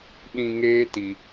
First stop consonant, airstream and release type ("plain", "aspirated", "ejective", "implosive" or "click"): implosive